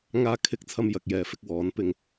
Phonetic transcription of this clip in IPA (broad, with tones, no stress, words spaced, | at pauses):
ŋaː˥kʰɪ˥k̚ t͡sʰɐ˧mjɐ˨k̚jɛː˨fɪ˧k̚ wɔː˨˥npɪ˧ŋ